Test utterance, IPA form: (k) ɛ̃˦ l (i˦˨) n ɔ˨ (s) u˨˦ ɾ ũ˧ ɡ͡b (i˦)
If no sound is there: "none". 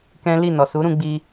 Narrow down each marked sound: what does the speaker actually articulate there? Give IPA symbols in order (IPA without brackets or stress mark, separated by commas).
k, i˦˨, s, i˧